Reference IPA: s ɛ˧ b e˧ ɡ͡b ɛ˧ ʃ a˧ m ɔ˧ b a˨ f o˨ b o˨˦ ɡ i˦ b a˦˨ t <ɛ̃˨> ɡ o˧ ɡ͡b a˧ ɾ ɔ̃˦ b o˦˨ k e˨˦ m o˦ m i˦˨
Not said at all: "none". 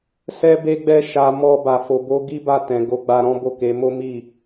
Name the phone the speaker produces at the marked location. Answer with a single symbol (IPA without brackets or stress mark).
ɛ̃˨